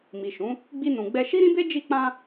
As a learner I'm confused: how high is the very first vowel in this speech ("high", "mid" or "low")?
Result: high